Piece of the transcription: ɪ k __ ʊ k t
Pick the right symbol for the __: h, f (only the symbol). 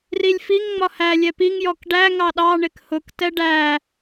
h